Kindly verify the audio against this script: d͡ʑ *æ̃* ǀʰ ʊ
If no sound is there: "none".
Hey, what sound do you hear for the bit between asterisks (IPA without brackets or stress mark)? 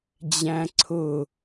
æ̃